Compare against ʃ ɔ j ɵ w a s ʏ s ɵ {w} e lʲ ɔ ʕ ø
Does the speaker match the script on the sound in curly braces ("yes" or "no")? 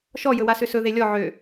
no